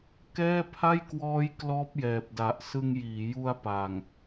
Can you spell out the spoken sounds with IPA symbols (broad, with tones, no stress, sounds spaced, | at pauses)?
k ɛː˥˩ pʰ a˥˩ j k w ɔː˦˥ j k l ɔː˦˥ p̚ j ɛː˨˩ p̚ d a˨˩ ʔ s ɯ˧ ŋ j iː˩˦ j u˧ a̯ p a˨˩ ŋ